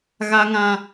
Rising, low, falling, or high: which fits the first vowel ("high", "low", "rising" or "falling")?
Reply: high